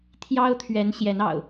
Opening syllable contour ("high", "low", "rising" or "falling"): high